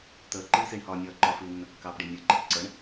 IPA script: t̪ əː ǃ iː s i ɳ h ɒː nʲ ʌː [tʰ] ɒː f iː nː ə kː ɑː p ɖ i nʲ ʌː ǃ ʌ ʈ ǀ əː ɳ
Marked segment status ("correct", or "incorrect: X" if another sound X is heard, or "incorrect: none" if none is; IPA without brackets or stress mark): incorrect: ǃ